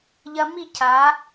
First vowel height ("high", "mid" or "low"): low